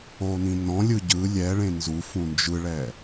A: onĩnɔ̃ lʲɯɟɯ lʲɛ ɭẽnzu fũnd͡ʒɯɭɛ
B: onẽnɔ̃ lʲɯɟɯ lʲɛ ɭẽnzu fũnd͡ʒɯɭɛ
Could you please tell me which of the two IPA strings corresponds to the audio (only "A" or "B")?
A